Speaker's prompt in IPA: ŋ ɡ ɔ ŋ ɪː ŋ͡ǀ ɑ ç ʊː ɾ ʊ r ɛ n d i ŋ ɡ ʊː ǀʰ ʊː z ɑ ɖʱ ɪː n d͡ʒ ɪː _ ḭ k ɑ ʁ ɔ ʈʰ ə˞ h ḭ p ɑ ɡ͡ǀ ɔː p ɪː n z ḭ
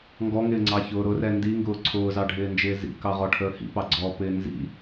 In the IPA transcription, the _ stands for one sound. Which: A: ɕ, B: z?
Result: B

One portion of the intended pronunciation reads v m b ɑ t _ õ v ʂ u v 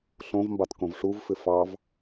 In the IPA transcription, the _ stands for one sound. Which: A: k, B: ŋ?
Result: A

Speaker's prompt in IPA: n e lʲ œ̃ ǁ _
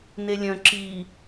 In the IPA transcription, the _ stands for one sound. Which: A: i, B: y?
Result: A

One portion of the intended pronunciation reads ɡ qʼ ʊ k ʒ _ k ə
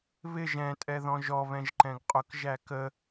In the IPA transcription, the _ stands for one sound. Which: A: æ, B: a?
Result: A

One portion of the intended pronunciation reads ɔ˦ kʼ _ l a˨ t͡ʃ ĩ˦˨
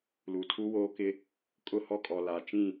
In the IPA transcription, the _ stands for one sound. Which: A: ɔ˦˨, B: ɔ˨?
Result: B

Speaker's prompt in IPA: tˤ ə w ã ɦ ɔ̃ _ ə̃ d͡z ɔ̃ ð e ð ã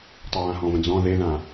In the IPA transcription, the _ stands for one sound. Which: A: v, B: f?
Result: A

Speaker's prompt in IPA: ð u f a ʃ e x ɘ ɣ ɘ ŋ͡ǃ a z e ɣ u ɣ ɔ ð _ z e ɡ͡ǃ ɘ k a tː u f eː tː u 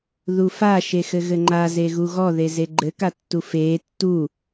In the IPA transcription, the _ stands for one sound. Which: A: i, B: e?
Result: B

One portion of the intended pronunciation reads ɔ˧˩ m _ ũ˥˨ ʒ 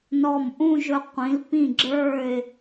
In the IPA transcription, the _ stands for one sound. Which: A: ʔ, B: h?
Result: A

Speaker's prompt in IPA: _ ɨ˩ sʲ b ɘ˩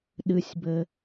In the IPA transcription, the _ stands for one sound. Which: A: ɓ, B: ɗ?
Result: B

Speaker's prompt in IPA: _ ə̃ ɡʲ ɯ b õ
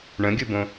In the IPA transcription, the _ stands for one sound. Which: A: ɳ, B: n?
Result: A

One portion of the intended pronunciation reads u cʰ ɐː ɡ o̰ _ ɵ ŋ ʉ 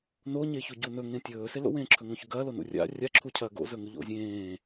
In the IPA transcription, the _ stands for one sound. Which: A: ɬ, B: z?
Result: B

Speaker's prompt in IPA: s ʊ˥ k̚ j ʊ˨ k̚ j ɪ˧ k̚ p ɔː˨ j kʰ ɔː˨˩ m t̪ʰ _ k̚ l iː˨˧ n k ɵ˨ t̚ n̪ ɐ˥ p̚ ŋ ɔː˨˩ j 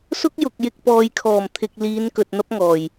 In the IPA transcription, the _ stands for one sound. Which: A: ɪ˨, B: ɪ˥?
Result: A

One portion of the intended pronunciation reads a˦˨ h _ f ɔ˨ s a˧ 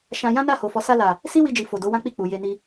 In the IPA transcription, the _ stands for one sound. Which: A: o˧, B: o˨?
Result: B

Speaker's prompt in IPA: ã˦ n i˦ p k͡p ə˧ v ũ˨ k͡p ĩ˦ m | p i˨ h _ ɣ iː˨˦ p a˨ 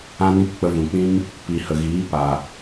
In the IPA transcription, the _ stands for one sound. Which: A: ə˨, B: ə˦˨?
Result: A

